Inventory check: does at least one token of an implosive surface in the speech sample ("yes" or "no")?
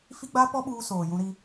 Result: yes